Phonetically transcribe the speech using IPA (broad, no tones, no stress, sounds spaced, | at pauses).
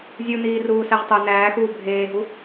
zʲ u n iː r uː s æ ʁ tˤ o n æː x uː bʱ eː ɦ u